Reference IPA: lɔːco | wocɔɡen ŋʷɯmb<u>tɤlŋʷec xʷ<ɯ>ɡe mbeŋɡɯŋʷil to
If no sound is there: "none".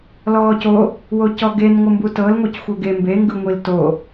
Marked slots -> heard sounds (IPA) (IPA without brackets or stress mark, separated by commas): u, ɤ